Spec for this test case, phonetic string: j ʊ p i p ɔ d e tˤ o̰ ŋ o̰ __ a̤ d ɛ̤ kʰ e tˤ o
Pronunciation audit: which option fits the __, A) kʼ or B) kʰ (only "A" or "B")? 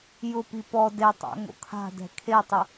B